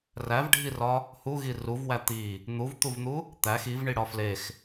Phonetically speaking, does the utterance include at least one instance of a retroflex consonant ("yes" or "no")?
yes